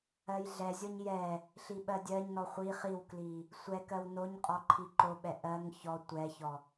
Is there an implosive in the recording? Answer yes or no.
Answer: yes